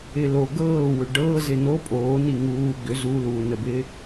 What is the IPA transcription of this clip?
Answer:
ɪlo ɡɤːwʏ ɖɤː zɪno pʼoːni ŋuː ɡʏ zuluːnəbɪː

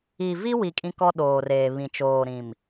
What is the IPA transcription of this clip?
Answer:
i˨vi˦wi˨ kʼĩ˦kɔ˦ɗoː˨reː˨ βĩ˨t͡ʃoː˨ɾĩ˨m

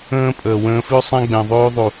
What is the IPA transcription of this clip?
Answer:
ə̃ː˦ pʼəː˨wə̃ː˧fʉ˦ sˤɛ̃˦ɡ͡bɛ̃˨ðˤʉː˦ ðˤu˨

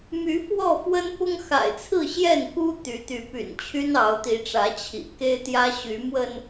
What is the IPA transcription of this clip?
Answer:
my˨˦fwɔ˥˨fwə˦n pʊ˦ŋxa̰˨˩ɪ̯ t͡sʰɹ̩˥˨ ɕjɛ˥˨nku˦ t̪y˨˦t̪y˨˦py̰˨˩n t͡ɕʰy˦nɑ˨˦ʊ̯t̪i˨˦ʈ͡ʂä˨˦ t͡ɕʰḭ˨˩ke˦ɪ̯t̪jä˦ ɕy˨˦mwə˧n

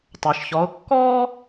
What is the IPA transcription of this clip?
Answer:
tˤəː˩ʃçɔ˩˧ʊ̯ kːɔː˥

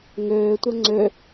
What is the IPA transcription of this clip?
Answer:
ŋøːtʷɛ ŋ͡ǀø

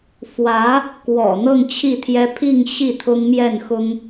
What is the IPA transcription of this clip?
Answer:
fwä˧˥ | kwɔ̰˨˩ n̪ɤ˥˧ŋt͡ɕʰi˥˩t̪ʰjɛ˥ pʰi˥˧ŋ ɕi˥˩t̪ʰʊ˥ŋ mjɛ˥˩nxʊ˥ŋ

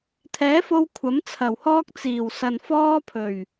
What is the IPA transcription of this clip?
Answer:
t̪ʰɛː˨˥fo˧w kʷʰɐ˨˥mt͡sʰɐ˨˩whɔː˥k̚ t͡siː˨˩w sɐ˨n fɔː˥pʰɵ˨˩ɥ

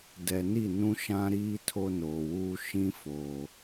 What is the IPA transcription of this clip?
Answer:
dɛ˨ni˦˨ nũ˦ʃã˦ɾiː˦ tʰo˦noː˨wuː˦ ʃĩ˦ foː˨

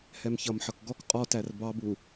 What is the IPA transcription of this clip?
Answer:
hɛmçʌmħʌk ɡɔk qʼɔtær bɑbu

